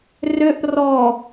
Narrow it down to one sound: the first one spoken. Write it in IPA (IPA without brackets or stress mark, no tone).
r